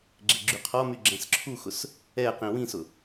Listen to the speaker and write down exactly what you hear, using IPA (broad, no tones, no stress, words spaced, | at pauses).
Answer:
ɡ͡ǁeɡ͡ǁyqʰɔmy ɡ͡ǁɛ̃sǁʰuxʊs | ɛ qĩwĩsʊ